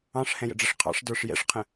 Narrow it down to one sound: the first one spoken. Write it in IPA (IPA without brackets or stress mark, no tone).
ɑ̃